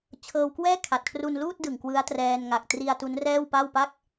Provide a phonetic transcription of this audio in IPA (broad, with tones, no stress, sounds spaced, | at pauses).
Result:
t͡ɕʰ ɤː˧ w k w ɛː˥˩ kʰ a˨˩ t̚ kʰ r u˧ n l uː˥˩ t̚ d ɯ˨˩ ŋ k w ɯ˦˥ a̯ t r ɛː˧ n ŋ a˨˩ k̚ t r i˧ a̯ t u˦˥ n r ɛː˥˩ w p a˥˩ w p a˥˩ k̚